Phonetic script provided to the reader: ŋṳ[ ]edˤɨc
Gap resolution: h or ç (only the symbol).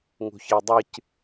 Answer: ç